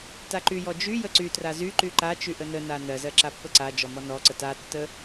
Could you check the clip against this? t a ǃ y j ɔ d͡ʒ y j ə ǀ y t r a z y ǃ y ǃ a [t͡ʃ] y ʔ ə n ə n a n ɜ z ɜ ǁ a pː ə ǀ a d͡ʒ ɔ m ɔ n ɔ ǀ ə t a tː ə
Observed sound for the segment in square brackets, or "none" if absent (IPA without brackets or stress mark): t͡ʃ